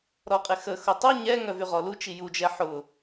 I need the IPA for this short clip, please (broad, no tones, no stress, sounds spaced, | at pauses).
ɾ ɔ qʼ ɪ x ə x ʊ tˤ u ɲ ɛ ŋ œ v y ʁ ɔ l u t͡ʃ i j u d͡ʒ ɛ ħ ʊ